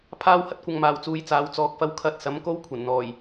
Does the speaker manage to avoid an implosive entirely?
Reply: yes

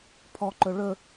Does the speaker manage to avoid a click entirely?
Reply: no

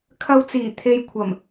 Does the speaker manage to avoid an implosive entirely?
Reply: yes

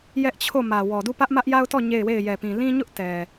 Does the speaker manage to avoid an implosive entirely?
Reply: yes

